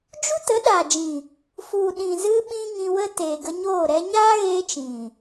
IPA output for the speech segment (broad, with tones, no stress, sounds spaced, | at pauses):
d͡ʒ u˦ t ə˨˦ ɗ aː˨ d͡ʒ ĩ˨ | f u˨ ɗ ĩ˨ z ɨ˧ ɓ ĩ˦ ŋ ĩ˧ w ə˦ t eː˨ ɡ ə˧ ɲ oː˦˨ ɾ ɛ˦ ɲ aː˦ ɣ eː˧ t͡ʃ ĩ˨